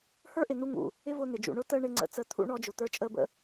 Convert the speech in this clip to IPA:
h ə˞˦ ʔ ɪ˨ n̪ u˧ ŋ ṵ˨ | ɪ˦ v ʊː˧ n̪ ɪ˨ d͡ʒ ṵ˨ ɳ ʊ˦ t əː˦ ɳ ɪ˧ ŋ͡ǀ ə̰˨˦ t͡s əː˧ t̪ʰ ṵ˧ ɳ ɔ˧ d͡ʒ ʊ˨ t̪ ə˞˧ t͡ʃʼ əː˧ b ə̰˦

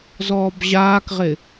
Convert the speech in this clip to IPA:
z ɔː b ʑ aː k ʁ ɪ

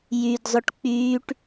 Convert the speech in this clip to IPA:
j y d zˤ ʏ ʈ k͡p yː ʈ

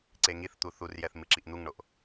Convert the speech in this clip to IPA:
ǀ e ŋ i θ t̪ u θ u r j ɛ θ m ɨ ǁ i ʔ n̪ u ŋ ɳ o ʔ

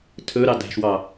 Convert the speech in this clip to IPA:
tʰ ɵ ɾ ɑ d æ̤ ʃ w ɑ

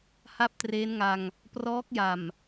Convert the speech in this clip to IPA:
h a˥˩ p̚ t r eː˦˥ n ŋ a˧ ŋ | p r ɔː˦˥ k̚ j a˨˩ m

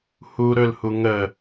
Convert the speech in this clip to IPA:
h u ɾ ɵ l h u ŋ ə

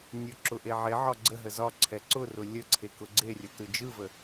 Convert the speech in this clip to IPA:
nʲ ʊ ǁ ʊ ʔ e ʕ e ʕ ɒ ɡ͡ǀ ə ɦ ə z ɒ ǀʰ ɛ ǀ ʊ r ʊ lʲ ə ǀʰ e k ʊ ɡ͡ǀ e rʲ ə t ɯ d͡ʒ ɯ v ə

